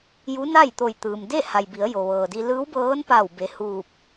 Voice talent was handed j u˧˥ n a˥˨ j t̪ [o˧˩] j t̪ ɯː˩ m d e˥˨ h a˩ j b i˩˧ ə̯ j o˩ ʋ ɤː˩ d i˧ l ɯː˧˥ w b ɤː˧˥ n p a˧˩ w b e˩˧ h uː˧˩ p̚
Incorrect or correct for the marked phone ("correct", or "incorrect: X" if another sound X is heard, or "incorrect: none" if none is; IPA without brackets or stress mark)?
correct